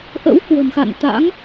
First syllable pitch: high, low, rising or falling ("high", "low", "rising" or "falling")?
rising